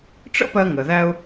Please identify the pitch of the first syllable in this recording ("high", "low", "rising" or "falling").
high